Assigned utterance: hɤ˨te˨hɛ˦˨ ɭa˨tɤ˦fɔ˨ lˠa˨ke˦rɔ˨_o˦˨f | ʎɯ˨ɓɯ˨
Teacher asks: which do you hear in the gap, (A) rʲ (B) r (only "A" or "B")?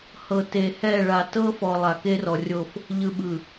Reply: A